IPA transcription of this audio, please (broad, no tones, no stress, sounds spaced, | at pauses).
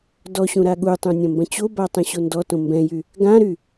d ɔ ɕ ũ ɾ a ɠ u tˤ ũ nʲ ɐ̃ m b ɐ̃ t͡ɕ o b a tˤ ɛ̃ ɕ o n d ɔ t õ m b ɛ̃ j y | ɡ ã ɾ y